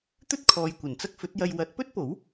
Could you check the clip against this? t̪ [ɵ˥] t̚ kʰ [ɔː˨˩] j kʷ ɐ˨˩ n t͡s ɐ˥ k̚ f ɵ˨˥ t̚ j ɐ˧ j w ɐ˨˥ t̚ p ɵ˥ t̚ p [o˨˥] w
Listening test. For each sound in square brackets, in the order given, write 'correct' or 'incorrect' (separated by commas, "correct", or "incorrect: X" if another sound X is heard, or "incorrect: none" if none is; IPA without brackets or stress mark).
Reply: correct, incorrect: ɔː˨, correct